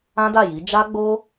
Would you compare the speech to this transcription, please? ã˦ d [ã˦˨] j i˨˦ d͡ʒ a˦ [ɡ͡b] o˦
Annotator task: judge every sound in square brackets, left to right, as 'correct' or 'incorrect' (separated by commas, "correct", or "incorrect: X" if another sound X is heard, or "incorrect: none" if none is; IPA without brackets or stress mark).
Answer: incorrect: a˦˨, correct